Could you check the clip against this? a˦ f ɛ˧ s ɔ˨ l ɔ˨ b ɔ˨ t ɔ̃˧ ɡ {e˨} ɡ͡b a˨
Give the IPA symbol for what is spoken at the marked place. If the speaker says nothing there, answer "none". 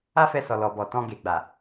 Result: e˨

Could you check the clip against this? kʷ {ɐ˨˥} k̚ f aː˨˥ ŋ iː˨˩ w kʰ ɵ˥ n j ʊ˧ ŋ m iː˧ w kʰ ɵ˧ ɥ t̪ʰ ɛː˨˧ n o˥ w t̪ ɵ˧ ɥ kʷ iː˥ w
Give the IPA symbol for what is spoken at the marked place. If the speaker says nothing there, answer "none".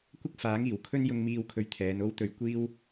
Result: ɐ˥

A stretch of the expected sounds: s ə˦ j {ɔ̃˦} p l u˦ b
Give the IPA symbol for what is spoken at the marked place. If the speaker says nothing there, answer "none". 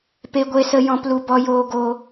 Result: ɔ̃˦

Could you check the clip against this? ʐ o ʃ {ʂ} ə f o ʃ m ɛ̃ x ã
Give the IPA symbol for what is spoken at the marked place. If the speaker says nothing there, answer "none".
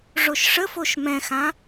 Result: ʂ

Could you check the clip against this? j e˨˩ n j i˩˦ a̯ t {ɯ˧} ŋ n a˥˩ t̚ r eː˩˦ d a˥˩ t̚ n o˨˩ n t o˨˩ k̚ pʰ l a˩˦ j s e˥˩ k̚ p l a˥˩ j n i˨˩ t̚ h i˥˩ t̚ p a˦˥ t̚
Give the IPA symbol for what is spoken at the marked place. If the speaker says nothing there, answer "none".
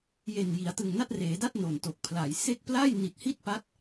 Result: ɯ˨˩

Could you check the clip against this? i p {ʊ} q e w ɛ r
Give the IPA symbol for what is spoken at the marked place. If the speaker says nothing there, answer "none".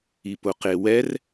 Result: ʊ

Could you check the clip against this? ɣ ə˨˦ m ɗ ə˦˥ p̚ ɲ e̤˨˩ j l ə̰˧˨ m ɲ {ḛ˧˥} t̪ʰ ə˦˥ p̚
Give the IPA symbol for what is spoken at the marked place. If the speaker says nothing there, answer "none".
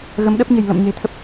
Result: e̤˨˩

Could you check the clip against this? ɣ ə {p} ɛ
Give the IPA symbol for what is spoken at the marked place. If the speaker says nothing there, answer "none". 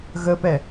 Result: p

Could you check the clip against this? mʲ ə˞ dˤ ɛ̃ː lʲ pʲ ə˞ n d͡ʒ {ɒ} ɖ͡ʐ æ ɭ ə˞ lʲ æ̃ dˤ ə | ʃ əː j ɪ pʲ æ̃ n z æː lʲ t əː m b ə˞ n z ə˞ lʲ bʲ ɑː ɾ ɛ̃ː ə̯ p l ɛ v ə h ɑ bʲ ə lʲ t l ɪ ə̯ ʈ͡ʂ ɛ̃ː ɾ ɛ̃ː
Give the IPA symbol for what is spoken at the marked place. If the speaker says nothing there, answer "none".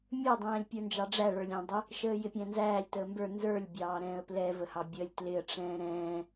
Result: ɑ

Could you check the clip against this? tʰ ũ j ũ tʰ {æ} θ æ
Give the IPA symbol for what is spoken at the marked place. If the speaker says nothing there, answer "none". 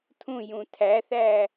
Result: æ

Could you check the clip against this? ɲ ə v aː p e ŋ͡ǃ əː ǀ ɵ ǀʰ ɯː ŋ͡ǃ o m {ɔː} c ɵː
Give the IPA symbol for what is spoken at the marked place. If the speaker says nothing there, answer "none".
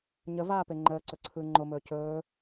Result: ɵː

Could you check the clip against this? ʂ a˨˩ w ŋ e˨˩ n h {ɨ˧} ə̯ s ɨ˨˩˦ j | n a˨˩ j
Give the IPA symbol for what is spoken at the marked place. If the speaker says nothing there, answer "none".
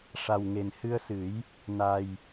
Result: ɨ˧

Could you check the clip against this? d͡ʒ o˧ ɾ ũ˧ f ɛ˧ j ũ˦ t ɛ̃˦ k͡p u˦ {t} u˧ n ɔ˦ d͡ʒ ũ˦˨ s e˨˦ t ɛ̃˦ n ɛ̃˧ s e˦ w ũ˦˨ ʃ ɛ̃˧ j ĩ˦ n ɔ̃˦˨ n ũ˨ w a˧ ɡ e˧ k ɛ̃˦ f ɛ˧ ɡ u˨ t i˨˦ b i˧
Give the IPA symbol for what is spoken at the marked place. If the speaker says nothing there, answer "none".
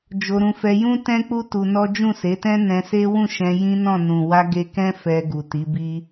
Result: t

